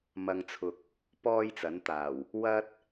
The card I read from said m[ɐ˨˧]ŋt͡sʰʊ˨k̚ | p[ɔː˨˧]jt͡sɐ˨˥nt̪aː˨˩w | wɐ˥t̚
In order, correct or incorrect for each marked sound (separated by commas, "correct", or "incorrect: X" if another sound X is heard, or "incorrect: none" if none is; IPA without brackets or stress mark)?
correct, incorrect: ɔː˥